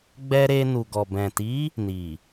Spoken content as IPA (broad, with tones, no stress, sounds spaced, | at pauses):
ɡ͡b ɛ˧ ɾ e˧ n u˨ ɡ ɔ˨ b ɛ̃˨ t i˨˦ | n i˨